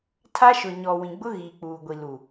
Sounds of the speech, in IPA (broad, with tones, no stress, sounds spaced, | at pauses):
tʰ a˦ ʃ ʊ˨ ɲ ɔ˨ w ĩ˨ ɡ͡b ʊ˦ ɣ iː˨ k͡p uː˨ ɡʷ i˨ l u˨